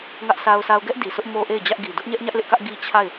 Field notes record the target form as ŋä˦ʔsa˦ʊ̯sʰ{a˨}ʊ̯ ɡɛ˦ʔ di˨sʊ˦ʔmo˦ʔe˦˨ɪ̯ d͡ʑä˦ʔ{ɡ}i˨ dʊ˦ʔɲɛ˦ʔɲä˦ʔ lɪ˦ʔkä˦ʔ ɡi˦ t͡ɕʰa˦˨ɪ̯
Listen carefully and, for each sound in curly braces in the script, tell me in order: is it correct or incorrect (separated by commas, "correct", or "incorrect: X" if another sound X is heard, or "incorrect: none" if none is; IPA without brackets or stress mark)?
incorrect: a˦, correct